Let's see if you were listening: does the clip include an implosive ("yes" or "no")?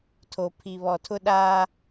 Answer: yes